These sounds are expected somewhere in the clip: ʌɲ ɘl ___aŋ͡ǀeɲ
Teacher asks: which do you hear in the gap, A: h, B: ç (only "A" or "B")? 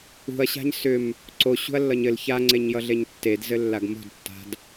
B